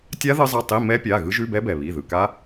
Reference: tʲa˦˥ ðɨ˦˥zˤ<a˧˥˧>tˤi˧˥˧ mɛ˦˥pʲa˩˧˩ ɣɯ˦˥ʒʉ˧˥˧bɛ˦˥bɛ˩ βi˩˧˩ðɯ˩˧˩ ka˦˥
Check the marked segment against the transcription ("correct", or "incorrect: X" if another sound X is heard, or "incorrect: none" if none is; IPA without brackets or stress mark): correct